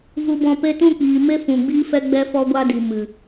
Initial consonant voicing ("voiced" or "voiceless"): voiced